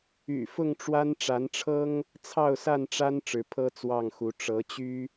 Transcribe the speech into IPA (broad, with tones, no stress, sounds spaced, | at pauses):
y̰˨˩ f ʊ˥˨ ŋ ʈ͡ʂ w a˦ n ʈ͡ʂ a˨˦ n ʈ͡ʂʰ ɤ˦ ŋ | t͡sʰ ɑ˥˨ ʊ̯ s a˥˨ n ʈ͡ʂ a˦ n ʈ͡ʂ ɻ̩˨˦ pʰ ɤ˦ t͡s w ɑ˥˨ ŋ x u˨˦ ʈ͡ʂ ɤ˨˦ t͡ɕ y˦